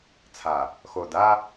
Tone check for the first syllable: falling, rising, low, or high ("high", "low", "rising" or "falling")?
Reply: low